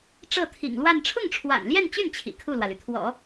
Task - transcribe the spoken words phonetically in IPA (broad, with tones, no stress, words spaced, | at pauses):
ʈ͡ʂɤ˥˩t̪ʰḭ˨˩ŋlwa˥˧n ʈ͡ʂʰʊ˥˩ŋʈ͡ʂʰwa̰˨˩nljɛ˥˧nt͡ɕy˥˩n t͡ɕʰḭ˨˩kʰu˥˩lwä˩ly˩ t̪ʰwɔ̰˨˩˦